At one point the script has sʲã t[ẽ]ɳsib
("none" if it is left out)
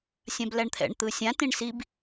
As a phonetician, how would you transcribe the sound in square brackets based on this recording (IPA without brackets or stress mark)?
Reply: ĩ